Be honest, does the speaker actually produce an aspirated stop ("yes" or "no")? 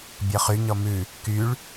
no